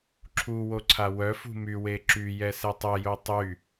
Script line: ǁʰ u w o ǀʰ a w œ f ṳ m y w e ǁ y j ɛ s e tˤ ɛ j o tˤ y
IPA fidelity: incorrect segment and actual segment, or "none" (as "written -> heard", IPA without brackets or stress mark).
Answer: none